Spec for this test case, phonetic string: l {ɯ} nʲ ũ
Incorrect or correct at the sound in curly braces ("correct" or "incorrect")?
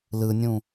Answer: correct